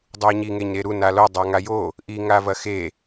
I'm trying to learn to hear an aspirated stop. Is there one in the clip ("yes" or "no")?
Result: no